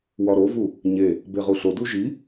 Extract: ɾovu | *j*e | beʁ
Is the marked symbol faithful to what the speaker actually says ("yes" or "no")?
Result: no